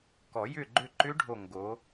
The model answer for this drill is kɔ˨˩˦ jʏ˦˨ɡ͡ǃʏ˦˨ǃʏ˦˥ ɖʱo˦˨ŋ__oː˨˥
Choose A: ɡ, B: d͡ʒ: A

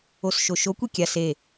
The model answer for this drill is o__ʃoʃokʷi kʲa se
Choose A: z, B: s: B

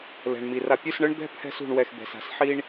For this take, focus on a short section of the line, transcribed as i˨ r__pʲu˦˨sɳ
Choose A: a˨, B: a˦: A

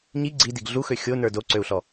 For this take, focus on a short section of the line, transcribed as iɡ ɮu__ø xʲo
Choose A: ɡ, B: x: B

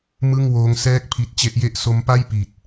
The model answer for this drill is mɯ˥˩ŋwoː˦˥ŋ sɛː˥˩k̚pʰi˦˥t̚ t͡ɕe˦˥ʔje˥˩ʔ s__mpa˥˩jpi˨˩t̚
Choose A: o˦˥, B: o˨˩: A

